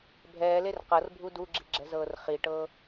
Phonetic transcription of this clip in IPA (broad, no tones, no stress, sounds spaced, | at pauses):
bʱ ɛː l e r q ɤ r bʱ u d u ɡ͡ǁ i̤ ɡ͡ǁ ɛ̤ z ɤː r χ i ʈ ɤ